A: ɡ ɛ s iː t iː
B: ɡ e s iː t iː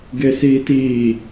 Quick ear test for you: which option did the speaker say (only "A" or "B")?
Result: B